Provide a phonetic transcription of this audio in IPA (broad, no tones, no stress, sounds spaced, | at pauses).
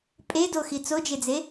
pʼ e d o x i t͡s o d͡ʒ e d͡z e